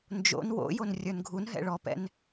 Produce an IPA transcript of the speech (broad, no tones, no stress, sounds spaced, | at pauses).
n d͡ʒ o̰ n w o̰ j o n rʲ ə˞ n ɡʱ u n ɦ ɛ̰ ɭ ɔ p ɛ̰ n